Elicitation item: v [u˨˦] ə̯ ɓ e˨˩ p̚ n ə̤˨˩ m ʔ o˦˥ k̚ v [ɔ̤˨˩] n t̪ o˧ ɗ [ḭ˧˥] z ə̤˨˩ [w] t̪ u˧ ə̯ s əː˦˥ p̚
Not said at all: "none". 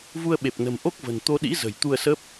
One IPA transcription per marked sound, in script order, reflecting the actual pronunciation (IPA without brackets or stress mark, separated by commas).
u˧, ə̤˨˩, ḭ˧˥, j